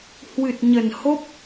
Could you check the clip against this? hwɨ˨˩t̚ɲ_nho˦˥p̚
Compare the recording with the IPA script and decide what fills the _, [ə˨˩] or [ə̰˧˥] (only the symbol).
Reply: ə˨˩